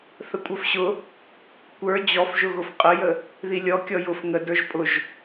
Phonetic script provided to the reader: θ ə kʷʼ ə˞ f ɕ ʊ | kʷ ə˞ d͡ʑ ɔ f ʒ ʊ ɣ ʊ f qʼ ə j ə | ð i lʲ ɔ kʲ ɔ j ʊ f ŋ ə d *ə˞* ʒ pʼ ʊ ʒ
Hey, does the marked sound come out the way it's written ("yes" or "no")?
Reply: yes